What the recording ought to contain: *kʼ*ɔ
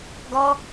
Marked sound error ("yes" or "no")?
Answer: yes